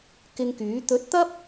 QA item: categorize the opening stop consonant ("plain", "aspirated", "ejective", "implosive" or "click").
plain